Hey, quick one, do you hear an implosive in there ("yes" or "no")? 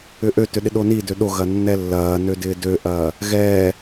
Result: yes